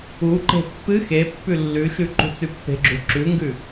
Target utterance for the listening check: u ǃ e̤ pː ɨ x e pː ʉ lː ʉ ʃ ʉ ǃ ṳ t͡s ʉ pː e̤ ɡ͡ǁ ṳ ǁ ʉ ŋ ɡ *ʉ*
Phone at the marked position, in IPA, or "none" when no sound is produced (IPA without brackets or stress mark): ʉ